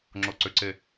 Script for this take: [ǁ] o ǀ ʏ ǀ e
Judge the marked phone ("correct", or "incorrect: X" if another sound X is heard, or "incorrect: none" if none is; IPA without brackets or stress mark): incorrect: ŋ͡ǁ